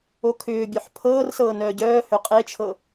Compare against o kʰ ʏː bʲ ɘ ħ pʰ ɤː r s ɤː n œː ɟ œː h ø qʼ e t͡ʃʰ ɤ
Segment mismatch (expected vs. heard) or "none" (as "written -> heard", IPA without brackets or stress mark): ɘ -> ø